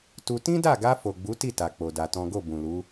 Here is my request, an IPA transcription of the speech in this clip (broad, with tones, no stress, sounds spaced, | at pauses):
t u˧ t ĩ˦ d a˦˨ ɡ a˧ f o˨ ɡ͡b u˨˦ t i˦˨ t a˧ k͡p o˧ d a˧ t ɔ̃˦ ɡ o˦˨ b ũ˨ l u˨˦